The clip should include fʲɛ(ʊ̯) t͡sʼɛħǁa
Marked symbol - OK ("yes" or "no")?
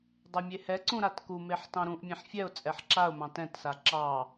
yes